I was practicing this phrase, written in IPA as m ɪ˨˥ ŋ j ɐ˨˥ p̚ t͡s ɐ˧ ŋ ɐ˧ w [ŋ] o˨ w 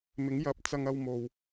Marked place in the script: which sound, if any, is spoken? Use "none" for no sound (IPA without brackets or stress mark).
m